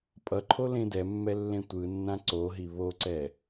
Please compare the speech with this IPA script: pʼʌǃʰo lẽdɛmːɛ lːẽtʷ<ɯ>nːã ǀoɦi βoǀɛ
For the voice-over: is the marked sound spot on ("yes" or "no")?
yes